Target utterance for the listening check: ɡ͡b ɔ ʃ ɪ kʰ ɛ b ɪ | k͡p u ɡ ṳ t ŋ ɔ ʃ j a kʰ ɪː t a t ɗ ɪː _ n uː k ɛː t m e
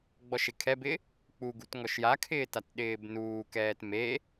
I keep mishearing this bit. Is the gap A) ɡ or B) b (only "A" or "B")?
B